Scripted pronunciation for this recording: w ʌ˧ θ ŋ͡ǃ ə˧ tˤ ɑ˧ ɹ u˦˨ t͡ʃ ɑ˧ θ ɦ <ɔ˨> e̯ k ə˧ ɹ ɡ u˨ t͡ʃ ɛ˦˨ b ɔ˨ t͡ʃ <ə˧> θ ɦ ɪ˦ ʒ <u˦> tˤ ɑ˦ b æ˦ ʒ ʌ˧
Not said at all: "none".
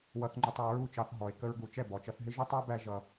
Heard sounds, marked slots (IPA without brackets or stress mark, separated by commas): ɔ˨, ʌ˧, ʊ˦